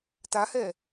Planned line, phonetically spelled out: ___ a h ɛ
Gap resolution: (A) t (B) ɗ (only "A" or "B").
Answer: A